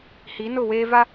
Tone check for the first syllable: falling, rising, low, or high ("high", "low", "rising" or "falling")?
rising